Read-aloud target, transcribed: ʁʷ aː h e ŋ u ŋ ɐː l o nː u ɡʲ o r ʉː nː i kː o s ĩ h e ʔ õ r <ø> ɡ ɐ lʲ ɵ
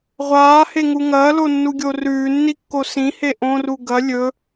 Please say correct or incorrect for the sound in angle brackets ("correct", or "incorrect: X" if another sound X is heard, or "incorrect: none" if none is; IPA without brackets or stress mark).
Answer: incorrect: u